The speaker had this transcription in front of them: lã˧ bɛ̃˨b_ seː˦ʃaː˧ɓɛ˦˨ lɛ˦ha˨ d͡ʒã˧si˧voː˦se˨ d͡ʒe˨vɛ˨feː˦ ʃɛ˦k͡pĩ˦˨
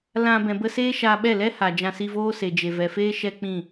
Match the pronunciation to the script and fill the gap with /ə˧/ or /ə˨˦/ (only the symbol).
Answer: ə˧